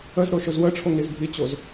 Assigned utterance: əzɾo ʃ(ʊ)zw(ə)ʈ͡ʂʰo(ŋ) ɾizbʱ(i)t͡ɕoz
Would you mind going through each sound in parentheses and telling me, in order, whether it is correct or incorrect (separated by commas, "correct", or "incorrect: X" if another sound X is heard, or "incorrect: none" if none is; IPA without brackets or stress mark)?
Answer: correct, correct, correct, correct